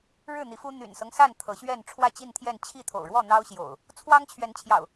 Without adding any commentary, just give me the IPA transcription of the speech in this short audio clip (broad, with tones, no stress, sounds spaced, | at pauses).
ɻ ɻ̩˥˨ n̪ i˨˦ f u˦ n̪ y̰˨˩ n s ɤ˦ ŋ s a˥˨ n t̪ʰ ɤ˨˦ ɕ ɥ ɛ˥˨ n ʈ͡ʂʰ w ä˥˨ t͡ɕ i˥˨ n t̪ʰ j ɛ˥˨ n t͡ɕʰ i˥˨ t̪ʰ o̰˨˩ ʊ̯ ɻ w ɔ˥˨ n̪ ɑ˦ ʊ̯ ɕ j o̰˨˩ ʊ̯ | t͡sʰ w ɑ˦ ŋ t͡ɕʰ ɥ ɛ˨˦ n t͡ɕʰ j ɑ̰˨˩ ʊ̯